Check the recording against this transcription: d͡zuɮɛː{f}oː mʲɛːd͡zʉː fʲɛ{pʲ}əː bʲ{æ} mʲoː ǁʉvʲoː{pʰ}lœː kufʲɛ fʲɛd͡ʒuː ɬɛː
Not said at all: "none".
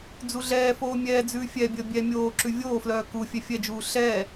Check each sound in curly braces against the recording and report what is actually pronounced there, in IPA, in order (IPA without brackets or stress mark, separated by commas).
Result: f, bʲ, ɛ, f